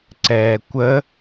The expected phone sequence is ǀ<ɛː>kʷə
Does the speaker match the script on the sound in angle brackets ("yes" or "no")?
yes